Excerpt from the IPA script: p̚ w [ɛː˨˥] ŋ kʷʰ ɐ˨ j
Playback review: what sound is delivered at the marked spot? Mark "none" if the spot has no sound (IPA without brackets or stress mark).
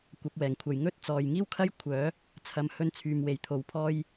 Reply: ɛː˨˩